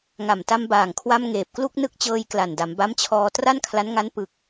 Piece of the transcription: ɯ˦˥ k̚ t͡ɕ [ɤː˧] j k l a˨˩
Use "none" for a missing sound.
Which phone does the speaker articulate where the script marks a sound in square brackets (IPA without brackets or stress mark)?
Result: ɤː˧